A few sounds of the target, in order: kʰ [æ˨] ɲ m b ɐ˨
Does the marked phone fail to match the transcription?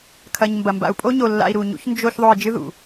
yes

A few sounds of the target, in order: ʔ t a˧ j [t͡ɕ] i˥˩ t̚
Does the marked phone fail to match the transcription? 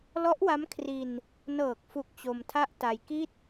yes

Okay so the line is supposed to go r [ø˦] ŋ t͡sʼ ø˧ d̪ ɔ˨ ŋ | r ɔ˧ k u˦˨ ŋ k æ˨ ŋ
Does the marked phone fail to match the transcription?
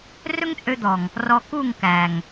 yes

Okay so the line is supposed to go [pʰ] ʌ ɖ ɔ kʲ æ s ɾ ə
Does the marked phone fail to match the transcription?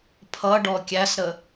no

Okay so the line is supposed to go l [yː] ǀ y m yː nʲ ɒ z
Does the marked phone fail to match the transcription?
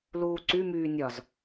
yes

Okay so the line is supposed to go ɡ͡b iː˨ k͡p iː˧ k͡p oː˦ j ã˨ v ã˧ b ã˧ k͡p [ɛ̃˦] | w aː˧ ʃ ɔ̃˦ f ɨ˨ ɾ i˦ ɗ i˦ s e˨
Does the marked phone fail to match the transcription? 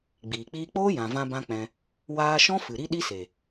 yes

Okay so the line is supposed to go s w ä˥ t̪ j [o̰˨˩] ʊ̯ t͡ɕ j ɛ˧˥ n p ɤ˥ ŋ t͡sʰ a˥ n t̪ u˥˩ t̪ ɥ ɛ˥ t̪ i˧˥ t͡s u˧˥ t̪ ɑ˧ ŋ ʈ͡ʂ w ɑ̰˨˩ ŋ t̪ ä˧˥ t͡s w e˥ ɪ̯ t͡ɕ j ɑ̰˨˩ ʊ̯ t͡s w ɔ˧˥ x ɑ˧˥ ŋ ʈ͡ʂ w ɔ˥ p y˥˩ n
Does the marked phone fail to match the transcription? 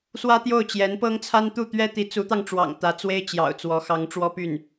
yes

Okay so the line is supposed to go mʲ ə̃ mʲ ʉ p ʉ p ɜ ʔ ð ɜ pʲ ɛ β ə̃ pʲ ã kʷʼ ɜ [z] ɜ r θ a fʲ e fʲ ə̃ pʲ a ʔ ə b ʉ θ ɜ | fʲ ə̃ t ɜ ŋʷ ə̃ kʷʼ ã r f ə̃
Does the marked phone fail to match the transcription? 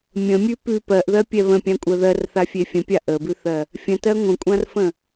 yes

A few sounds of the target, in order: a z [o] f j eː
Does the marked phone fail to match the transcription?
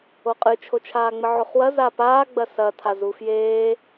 yes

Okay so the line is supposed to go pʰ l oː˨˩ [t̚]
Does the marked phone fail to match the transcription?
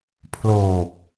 yes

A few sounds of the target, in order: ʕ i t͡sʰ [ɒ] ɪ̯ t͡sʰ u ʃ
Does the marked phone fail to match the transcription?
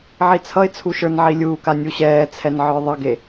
yes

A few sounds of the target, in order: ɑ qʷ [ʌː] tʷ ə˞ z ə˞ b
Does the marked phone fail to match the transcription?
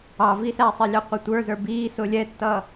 yes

